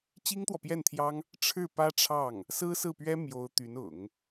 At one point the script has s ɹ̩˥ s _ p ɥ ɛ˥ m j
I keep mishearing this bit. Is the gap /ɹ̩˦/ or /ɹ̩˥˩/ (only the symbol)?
ɹ̩˥˩